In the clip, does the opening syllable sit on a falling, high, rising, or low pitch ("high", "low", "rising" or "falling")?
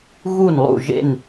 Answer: falling